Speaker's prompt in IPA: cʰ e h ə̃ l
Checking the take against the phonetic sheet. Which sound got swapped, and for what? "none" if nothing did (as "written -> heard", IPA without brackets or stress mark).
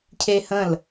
none